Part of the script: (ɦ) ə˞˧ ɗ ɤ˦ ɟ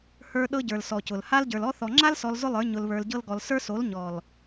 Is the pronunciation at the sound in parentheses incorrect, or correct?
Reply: incorrect: h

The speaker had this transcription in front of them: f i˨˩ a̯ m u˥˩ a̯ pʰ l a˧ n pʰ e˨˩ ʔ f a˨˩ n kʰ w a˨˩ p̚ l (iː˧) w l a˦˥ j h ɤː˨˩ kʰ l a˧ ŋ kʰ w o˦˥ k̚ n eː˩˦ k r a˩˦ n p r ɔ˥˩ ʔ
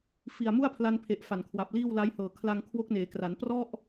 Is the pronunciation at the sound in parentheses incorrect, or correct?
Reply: incorrect: iː˥˩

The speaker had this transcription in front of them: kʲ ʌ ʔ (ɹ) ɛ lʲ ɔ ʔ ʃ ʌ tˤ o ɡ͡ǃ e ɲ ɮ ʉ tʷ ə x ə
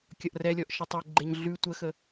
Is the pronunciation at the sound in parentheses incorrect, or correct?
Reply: incorrect: r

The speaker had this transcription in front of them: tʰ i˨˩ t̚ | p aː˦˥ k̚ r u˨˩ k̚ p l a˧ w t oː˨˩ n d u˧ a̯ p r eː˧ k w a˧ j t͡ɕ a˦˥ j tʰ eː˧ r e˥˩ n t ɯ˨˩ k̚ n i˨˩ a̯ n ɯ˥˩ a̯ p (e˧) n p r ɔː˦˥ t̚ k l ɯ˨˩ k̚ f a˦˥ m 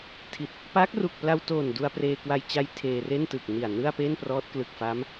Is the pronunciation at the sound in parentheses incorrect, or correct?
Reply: incorrect: e˥˩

